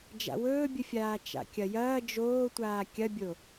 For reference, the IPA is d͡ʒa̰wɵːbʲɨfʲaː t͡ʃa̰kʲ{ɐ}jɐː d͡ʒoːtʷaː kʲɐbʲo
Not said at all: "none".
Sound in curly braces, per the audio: ɐ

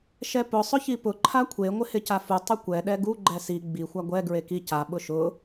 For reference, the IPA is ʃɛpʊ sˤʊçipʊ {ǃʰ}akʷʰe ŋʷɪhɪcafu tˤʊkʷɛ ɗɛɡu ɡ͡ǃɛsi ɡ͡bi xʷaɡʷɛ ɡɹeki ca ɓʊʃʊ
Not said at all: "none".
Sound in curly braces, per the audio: ǃʰ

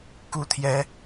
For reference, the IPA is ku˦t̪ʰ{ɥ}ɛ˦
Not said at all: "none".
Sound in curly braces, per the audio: j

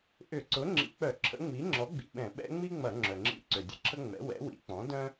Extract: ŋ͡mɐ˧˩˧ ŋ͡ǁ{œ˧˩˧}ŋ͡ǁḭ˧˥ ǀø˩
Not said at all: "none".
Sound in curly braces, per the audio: œ˩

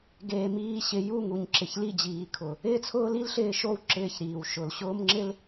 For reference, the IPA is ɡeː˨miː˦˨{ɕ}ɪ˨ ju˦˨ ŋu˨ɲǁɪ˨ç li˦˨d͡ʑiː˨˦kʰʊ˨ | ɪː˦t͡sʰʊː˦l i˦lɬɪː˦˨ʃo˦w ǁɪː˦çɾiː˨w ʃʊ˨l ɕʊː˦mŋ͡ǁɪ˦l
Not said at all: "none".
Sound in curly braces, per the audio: ɕ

